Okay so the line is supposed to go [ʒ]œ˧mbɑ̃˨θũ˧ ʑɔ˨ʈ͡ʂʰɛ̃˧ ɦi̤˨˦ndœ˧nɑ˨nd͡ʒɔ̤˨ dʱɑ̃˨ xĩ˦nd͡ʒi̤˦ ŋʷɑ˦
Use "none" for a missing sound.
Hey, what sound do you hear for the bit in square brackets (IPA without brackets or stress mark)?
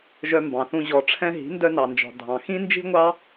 ʒ